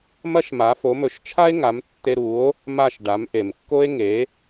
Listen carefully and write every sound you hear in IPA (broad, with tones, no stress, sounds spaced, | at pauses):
m ɐ˥ ʃ m a˩˥ f o˩˥ m ɵ˩˥ ʃ t͡ʃʰ a˥ e̯ ŋ a˩˥ m tː e˧ ɾ u˩˥ o̯ | m a˥˩ ʃ ɖ a˩˥ m ʔ e˩ m kː o˥ e̯ ŋ e˩˥